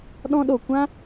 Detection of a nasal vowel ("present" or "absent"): present